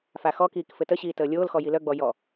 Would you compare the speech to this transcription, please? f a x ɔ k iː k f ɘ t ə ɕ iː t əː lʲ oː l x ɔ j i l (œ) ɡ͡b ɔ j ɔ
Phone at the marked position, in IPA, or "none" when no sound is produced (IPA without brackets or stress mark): œ